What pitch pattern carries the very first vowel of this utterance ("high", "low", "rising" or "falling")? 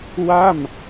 falling